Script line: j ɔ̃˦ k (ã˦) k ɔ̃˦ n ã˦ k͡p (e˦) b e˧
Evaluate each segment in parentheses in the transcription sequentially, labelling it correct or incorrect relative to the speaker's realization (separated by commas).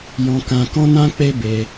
correct, correct